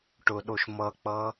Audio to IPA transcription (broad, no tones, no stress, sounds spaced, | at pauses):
ʈ ʊ ɗ o ʃ m ʌ k͡p ʌ